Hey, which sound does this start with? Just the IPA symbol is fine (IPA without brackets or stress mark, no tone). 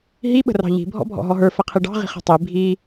ɦ